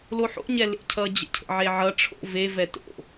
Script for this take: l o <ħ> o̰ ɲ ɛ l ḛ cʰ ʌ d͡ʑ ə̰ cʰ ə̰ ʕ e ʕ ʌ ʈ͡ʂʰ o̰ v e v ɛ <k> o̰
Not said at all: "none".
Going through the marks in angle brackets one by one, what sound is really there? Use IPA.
ħ, t

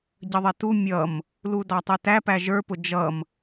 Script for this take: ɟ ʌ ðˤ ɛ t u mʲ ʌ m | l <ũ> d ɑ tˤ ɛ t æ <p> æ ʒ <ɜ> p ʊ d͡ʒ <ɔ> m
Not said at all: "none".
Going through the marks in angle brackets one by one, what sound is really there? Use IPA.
u, p, ə˞, ʌ

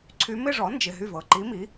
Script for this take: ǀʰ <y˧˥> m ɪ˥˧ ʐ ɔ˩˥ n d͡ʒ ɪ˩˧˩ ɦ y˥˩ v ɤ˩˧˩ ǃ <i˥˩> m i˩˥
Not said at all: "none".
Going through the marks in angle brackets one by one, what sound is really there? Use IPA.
y˧˥, i˧˥

